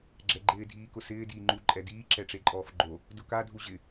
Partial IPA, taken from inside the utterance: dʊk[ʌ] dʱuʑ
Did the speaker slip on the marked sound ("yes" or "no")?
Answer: yes